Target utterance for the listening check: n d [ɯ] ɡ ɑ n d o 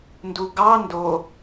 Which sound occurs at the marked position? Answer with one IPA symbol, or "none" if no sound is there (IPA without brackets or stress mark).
u